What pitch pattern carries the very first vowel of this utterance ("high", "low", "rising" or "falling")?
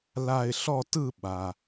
falling